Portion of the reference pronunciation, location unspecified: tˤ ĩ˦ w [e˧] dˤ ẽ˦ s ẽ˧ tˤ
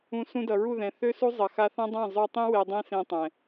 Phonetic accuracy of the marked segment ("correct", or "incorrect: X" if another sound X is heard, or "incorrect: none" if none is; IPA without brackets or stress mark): correct